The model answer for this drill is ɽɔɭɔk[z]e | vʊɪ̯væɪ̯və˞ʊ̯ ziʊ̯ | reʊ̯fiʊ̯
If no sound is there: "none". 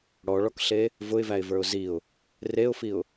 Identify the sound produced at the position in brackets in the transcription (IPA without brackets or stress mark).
ɬ